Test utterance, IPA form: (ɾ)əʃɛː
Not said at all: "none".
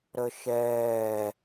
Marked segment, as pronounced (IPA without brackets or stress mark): ɾ